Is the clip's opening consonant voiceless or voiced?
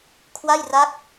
voiceless